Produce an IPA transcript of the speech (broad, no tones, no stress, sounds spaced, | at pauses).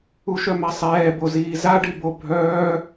u ʃ œ m a sˤ ɛː b o z iː z a ɖ i b o bʱ œː